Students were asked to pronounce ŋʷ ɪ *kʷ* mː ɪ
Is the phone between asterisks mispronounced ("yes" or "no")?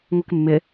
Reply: yes